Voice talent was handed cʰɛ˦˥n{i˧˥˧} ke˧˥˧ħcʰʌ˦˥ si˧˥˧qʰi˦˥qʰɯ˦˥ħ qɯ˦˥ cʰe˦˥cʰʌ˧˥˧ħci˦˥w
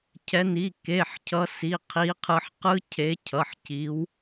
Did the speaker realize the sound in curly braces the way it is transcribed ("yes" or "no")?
yes